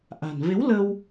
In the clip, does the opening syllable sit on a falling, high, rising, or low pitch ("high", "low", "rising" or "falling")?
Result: low